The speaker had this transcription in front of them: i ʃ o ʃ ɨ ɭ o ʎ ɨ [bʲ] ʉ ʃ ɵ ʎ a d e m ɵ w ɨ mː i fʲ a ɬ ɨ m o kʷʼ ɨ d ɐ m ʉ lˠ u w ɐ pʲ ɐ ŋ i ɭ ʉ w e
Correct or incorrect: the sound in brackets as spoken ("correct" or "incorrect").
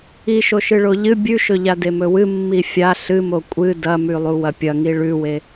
correct